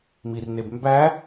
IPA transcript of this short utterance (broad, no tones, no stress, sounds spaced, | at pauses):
m i r n e b m b æ